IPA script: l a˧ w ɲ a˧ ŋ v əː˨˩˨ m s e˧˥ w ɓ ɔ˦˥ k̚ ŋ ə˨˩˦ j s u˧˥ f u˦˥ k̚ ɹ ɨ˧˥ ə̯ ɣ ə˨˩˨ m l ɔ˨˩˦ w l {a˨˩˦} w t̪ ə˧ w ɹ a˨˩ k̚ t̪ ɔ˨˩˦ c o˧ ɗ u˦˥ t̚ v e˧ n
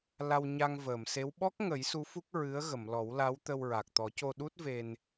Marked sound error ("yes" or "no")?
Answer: yes